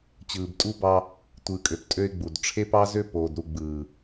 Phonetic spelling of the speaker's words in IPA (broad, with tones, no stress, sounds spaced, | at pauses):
t͡ɕ ɯː˨ b tʼ u˦ b ɑ˦ | tʷ ɯː˨ kʼ ø˨ p tʼ ø˦ ɪ̯ ɡ͡b u˨ d ʈ͡ʂʰ e˦ p ɑ˦ z ø˦ p oː˨ d ɾ u˨ ɡ͡b ɯː˨